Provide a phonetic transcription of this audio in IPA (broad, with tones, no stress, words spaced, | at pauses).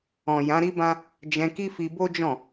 ɔ̃˨ jã˨˦ɾi˦bã˦ | d͡ʒɛ̃˧ki˦fi˧ bo˦d͡ʒɔ̃˦˨